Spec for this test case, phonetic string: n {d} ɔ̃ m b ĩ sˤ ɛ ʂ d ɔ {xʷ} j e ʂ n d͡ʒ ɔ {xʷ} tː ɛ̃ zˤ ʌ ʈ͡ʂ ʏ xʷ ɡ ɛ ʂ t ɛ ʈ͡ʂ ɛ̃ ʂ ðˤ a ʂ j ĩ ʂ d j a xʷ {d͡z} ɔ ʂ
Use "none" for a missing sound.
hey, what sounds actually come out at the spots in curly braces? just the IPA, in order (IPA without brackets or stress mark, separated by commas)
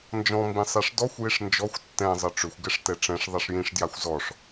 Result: d͡ʒ, xʷ, xʷ, z